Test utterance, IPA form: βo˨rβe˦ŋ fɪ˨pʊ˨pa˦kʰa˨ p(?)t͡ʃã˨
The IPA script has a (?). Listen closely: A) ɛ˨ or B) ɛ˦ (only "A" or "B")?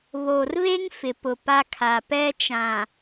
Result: B